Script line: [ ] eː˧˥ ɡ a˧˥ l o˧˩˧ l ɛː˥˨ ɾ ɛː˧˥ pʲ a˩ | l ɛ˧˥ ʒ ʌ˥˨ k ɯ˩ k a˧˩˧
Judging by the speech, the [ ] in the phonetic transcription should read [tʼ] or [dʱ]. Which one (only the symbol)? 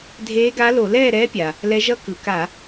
dʱ